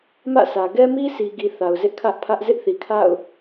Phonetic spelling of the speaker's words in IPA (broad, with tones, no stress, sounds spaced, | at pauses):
m ä̰˦˨ s ä˨ ɡ ɛ˦ m i˦ s i˨ ɡ i˨ θ a˨ ʊ̯ z ɪ˦ ʔ kʰ ä˦ ʔ pʰ ä˦ ʔ z ɪ˦ ʔ θ i˨ kʰ a̰˦˨ ʊ̯